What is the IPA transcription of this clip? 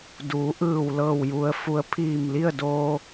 d uː˩˧ ʔ ɯː˧˩ w l ɤː˧˩ w j u˩ ə̯ f u˩˧ ə̯ pʰ iː˧˩ m l i˥˨ ə̯ d oː˧

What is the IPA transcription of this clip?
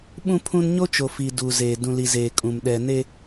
ɓ ũ˦ pʰ ũ˦ n ɲ o˦ t͡ʃ o˨ f i˨ d u˨ z eː˨ d ũ˨ l i˨ z eː˨ kʼ ũ˨ m ɗ ɛ˨ n e˦

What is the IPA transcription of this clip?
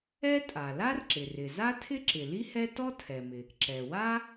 ɛ˥ tʼ a˩ l a˥ r ǁ ɪ˩ r ɪ˩ z a˥ tʰ ɪ˥ ǁ ɪ˩ l i˥ h ɛ˥ t ɔ˥ tʰ ɛ˩ m ɪ˩ | ǁ ɛ˩ w a˥

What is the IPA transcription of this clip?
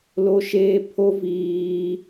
l o˦ ʃ eː˦ pʰ o˦ v iː˦

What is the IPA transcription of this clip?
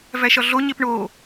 v æ ʃ ɒ ɮ o ɲ e p ɳ o

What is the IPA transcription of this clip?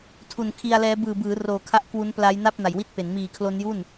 tʰ u˨˩ n kʰ i˧ a̯ l ɛː˦˥ b ɯː˨˩ b ɯː˩˦ r oː˨˩ kʰ a˦˥ ʔ k w u˦˥ n p l a˦˥ j n a˥˩ p̚ n a˨˩ j w i˥˩ t̚ p e˩˦ n m iː˨˩ kʰ l o˦˥ n j u˥˩ n

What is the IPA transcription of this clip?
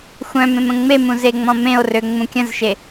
xʷ œ̃ m ẽ m ə̃ ŋ͡m e m ũ z e ŋ͡m ɔ̃ m ẽ o̯ r ø ŋ͡m ũ kʲ ə̃ z ʃ e

